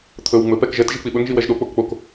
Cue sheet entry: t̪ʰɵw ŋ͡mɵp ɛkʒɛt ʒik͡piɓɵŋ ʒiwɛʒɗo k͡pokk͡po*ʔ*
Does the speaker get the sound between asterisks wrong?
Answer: yes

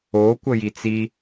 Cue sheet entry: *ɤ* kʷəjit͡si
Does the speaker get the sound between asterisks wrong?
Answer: yes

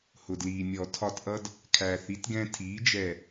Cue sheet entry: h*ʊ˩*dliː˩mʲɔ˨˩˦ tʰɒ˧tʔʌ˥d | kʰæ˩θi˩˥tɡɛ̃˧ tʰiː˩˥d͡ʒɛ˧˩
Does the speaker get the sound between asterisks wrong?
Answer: no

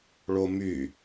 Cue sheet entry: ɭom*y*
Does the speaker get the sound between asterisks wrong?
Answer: no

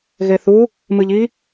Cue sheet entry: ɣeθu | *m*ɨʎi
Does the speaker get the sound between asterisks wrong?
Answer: no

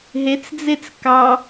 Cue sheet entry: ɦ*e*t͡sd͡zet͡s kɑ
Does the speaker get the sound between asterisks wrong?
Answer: no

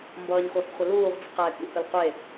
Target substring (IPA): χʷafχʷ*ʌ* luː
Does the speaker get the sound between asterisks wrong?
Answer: no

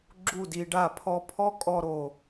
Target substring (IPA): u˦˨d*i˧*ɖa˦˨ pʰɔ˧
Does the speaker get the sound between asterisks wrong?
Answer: no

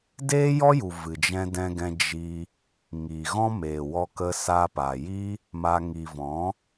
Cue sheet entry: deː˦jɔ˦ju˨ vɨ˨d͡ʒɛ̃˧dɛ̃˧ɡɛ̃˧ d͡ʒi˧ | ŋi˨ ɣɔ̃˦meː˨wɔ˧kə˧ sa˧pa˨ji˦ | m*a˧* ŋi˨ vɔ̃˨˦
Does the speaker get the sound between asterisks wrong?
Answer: no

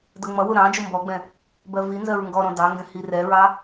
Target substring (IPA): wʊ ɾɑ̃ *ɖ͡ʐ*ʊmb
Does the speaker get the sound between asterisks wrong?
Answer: yes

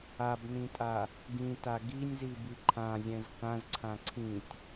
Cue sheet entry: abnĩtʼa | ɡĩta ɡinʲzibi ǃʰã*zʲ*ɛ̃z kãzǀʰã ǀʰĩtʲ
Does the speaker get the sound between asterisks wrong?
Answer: no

